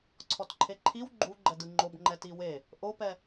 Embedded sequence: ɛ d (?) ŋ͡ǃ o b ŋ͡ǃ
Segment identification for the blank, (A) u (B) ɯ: B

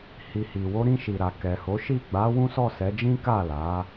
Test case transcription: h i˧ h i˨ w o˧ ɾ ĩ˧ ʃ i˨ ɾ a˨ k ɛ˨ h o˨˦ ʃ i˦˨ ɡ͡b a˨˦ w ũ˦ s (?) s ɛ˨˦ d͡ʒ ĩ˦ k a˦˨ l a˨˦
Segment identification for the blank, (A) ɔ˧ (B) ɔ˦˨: B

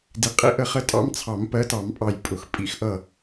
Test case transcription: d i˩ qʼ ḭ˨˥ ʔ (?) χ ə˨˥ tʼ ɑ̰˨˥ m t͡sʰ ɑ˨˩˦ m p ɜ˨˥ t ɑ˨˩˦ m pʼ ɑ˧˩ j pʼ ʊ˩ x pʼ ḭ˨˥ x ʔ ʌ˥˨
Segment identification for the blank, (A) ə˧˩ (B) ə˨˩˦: B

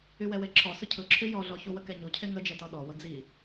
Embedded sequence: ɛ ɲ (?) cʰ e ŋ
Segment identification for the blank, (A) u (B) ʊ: A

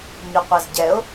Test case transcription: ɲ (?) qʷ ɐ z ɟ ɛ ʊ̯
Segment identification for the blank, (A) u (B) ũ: A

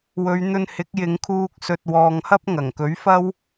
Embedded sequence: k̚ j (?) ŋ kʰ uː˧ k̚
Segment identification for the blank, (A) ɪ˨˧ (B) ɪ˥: A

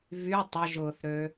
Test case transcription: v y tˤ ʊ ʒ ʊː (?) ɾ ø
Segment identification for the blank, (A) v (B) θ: B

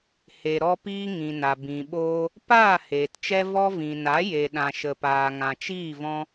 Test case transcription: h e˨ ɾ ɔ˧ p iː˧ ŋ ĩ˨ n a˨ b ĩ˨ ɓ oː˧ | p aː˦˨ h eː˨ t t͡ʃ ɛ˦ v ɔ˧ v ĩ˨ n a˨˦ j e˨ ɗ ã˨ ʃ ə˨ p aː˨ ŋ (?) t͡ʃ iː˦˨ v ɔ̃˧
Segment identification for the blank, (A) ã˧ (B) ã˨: B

